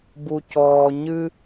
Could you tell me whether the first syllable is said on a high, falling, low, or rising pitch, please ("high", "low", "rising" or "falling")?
low